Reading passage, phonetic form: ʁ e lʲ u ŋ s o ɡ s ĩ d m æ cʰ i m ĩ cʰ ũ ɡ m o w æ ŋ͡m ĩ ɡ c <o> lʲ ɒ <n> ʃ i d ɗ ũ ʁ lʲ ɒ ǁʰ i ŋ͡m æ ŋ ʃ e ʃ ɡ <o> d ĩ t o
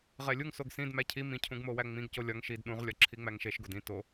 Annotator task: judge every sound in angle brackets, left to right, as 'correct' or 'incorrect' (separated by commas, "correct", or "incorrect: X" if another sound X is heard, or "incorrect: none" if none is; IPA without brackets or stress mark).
correct, incorrect: ŋ, correct